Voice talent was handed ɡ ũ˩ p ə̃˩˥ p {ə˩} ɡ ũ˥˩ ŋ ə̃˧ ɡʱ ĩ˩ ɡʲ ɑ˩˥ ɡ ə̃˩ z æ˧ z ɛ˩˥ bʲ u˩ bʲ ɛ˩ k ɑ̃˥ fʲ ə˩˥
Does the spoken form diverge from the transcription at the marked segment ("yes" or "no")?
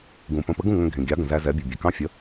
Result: yes